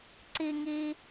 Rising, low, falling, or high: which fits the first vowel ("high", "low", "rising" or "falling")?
high